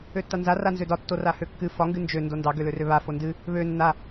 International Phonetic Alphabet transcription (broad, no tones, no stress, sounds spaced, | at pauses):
ø tː a n z a r a n z ø d ɒ tː o r a h ø kː ɨ f ɒ ŋ ɡ ɨ n d͡ʒ ø n d o n d ɑ ɡ ø l ø r ø β a f o n d ɨ | β ø nː a